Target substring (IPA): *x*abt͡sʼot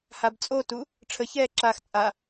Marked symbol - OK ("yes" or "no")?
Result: no